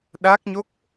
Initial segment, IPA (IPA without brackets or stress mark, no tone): ɗ